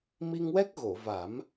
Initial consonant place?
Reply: labial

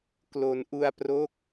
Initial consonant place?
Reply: velar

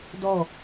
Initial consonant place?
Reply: alveolar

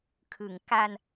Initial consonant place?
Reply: velar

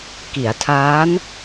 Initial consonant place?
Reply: velar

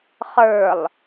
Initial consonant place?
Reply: uvular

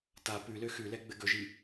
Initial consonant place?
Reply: alveolar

